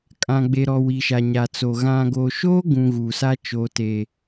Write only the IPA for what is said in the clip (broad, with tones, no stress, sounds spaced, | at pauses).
kʼ ã˨ ɡ͡b e˨ ɾ ɔ˨ w i˨ ʃ a˨ ɲ a˨ t͡s o˨ ɣ ã˨ ɡ oː˨ ʃ oː˦ ɡ ũ˨ ɣ uː˨ s a˦ t͡ʃ oː˨ t eː˨